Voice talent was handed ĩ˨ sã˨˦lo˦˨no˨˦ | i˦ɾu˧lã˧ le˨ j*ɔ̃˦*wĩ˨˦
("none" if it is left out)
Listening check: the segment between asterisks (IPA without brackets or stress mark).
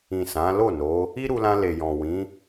ɔ̃˨